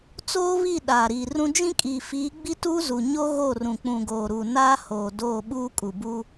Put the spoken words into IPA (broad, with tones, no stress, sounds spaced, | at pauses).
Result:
t͡s oː˦ β i˦˨ ɗ aː˨ ɾ iː˨ r ũ˦ d͡ʒ ĩ˦ kʼ i˨ f iː˨˦ ɡ͡b i˦ t uː˦ z u˨ ɲ o˦ ɣ o˦˨ r ũ˨ k͡p ũ˨ ɡ oː˨ ɾ u˨ n aː˦ h oː˨ d oː˦˨ ɓ uː˦ kʼ u˨ b uː˦